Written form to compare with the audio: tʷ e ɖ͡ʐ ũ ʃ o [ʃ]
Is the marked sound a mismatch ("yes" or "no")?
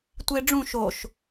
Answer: no